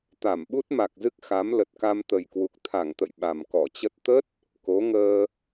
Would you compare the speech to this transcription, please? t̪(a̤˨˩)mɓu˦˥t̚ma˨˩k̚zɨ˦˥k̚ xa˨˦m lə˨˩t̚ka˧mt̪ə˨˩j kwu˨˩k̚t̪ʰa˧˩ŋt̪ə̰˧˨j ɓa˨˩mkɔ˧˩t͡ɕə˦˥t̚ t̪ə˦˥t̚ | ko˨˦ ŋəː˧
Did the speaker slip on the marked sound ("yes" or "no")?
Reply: yes